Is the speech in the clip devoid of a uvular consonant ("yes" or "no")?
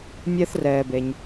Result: yes